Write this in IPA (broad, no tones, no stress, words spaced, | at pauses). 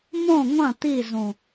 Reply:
mõ ŋʷɐ̃ t̪izũ